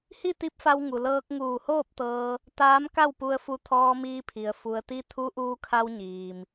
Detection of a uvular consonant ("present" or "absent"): absent